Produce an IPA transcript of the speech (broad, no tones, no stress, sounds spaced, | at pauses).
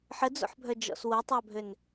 ħ ə d͡z o̰ ħ bʱ œ d͡ʒ ɔ̰ s w o tˤ a bʱ ø n